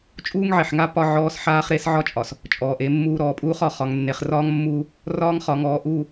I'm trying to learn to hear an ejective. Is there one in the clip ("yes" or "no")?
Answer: yes